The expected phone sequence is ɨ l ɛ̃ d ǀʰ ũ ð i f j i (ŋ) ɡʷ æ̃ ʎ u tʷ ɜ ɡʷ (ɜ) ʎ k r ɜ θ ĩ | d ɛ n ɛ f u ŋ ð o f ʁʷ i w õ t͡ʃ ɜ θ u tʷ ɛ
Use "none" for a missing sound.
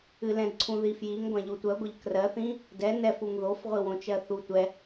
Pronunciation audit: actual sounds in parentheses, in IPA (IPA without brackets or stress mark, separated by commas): ŋ, ɜ